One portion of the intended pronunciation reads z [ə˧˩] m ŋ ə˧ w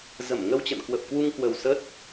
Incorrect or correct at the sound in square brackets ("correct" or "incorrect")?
correct